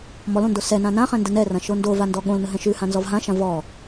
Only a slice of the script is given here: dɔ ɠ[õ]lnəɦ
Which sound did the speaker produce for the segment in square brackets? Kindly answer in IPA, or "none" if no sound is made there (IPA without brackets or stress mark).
õ